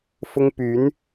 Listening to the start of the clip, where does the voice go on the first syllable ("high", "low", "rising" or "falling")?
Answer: high